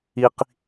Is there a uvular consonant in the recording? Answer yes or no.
yes